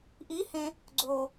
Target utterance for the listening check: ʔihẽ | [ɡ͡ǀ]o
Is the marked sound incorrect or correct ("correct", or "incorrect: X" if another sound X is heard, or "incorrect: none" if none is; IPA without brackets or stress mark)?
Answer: correct